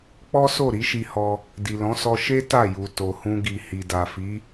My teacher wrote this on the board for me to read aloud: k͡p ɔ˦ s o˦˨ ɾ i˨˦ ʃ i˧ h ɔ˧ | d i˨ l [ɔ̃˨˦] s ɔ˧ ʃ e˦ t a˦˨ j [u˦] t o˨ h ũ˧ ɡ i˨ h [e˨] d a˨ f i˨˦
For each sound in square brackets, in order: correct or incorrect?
correct, incorrect, incorrect

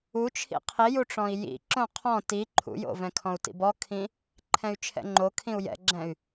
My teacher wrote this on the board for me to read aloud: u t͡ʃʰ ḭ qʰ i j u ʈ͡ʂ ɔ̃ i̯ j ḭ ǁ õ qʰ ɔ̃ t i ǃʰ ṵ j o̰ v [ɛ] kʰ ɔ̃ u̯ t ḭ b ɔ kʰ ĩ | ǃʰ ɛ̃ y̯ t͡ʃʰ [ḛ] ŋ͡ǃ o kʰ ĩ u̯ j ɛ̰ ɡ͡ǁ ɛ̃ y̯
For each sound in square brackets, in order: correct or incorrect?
incorrect, incorrect

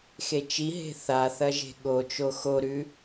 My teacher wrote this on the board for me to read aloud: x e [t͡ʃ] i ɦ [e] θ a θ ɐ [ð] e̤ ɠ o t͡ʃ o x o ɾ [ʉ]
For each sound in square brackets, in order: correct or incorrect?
correct, incorrect, incorrect, correct

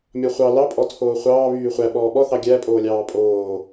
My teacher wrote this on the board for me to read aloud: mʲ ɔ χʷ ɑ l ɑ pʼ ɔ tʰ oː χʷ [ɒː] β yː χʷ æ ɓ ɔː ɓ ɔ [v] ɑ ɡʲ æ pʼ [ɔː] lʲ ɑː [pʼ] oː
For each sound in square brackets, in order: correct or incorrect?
incorrect, incorrect, incorrect, correct

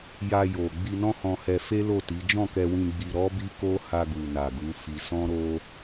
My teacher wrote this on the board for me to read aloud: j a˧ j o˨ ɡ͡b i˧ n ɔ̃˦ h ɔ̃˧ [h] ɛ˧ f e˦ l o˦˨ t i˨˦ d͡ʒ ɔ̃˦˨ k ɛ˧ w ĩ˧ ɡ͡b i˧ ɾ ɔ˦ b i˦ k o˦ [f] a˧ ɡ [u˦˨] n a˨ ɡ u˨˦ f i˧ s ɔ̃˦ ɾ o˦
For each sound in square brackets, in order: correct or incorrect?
correct, incorrect, incorrect

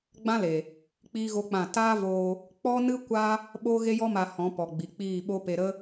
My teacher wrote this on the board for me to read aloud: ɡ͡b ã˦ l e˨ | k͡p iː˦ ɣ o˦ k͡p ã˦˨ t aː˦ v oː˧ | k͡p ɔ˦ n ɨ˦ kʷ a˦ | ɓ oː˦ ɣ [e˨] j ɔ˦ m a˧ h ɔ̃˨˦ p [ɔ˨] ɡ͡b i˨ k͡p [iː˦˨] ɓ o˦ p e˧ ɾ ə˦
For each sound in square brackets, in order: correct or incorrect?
incorrect, correct, correct

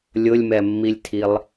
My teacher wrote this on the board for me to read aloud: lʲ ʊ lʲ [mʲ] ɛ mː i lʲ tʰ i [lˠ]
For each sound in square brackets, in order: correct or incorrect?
incorrect, correct

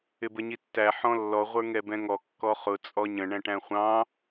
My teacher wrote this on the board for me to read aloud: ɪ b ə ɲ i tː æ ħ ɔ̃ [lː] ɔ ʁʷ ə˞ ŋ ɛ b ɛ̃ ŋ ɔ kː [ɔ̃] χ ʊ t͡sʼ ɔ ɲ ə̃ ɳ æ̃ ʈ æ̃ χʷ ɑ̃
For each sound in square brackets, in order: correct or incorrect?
correct, incorrect

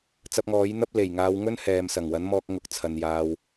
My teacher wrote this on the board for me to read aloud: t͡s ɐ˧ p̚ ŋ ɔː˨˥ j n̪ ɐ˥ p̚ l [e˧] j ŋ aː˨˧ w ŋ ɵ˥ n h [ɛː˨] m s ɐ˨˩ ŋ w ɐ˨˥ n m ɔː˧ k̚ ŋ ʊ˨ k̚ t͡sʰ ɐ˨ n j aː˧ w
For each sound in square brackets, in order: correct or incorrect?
incorrect, correct

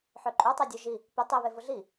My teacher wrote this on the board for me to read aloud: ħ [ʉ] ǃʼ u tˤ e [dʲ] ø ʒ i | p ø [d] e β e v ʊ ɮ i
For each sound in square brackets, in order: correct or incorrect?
incorrect, correct, incorrect

